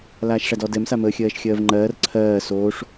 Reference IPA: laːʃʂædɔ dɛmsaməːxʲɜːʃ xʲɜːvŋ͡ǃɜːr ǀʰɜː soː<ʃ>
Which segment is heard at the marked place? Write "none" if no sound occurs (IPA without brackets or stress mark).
ʂ